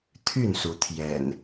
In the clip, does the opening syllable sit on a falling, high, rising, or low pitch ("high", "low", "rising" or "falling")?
falling